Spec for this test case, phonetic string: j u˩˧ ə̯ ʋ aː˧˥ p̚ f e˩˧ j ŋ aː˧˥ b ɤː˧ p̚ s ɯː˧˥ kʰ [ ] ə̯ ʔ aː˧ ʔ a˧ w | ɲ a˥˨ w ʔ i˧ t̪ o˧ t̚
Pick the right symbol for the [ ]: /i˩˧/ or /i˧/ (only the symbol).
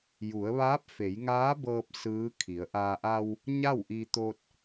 i˩˧